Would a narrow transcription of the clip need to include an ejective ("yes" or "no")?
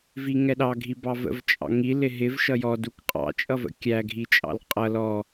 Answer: yes